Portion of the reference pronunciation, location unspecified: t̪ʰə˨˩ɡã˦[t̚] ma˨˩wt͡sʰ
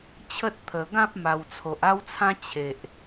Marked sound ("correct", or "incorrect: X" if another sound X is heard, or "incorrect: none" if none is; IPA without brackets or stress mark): incorrect: p̚